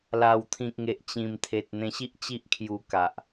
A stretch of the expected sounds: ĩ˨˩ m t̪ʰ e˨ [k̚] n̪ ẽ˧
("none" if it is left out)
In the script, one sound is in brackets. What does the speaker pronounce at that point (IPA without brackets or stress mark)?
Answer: t̚